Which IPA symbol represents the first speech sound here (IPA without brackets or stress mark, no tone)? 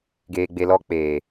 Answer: ɡ